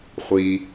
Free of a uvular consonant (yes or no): no